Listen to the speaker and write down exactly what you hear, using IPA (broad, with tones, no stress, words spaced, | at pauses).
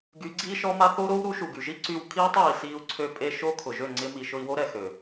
ɡy˨˦ɡ͡ǀiː˦ʃɔ˦ma˦ θo˦ɾo˦w ɾu˨˦ʃu˨ɡy˨ʒi˦ ǀy˧w kʰiː˦tˤiː˨siː˧u̯ ǀʰø˧pʼe˧ʃo˦ kʰʊ˨ʒø˦˨ ŋ͡ǀɪ˦mi˧ ʃʊ˧i̯wo˦ɾɛ˨ xø˨